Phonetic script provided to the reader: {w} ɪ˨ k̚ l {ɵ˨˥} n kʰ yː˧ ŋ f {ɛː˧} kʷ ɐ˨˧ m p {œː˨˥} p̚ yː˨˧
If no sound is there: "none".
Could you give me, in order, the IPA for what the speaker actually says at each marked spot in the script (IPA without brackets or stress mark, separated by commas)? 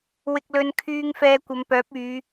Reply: w, ɵ˨˧, ɛː˧, œː˨˥